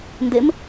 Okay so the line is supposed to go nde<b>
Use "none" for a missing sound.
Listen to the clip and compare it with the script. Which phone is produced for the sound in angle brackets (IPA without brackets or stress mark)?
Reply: m